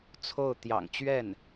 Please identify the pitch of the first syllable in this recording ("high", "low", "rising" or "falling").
falling